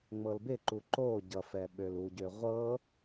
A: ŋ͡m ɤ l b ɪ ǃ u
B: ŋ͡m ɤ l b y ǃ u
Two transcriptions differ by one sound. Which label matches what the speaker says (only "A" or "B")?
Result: A